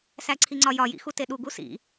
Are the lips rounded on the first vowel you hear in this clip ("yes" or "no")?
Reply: no